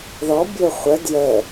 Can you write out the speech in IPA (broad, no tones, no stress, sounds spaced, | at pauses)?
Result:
ð ɔ bʲ o χʷ ə d j ə